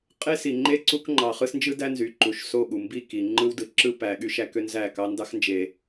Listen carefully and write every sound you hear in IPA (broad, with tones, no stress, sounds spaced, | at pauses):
qʼ e˦ s i˨ ŋ͡ǃ e˦ ǀ u˦ k ŋ͡ǃ ɑ˨ χ ɯ˦ s n d͡ʒ ɯ˦ d æ˦ n z y˨ ǃ u˨ ʃ s o˦˨ ɠ u˨ m b i˦˨ k i˨ ŋ͡ǃ ɯ˦ w d ɯ˨ ǁ ɯ˦ p æ˨ ɠ y˦ ʃ æ˦ k ø˦ n z æ˦˨ k ɑ˦ n d ɑ˦ x n d͡ʒ e˨